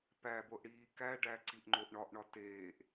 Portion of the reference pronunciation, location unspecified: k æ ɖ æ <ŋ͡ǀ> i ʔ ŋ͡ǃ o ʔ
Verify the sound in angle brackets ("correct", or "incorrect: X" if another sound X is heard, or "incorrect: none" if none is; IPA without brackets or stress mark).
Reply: incorrect: ǀ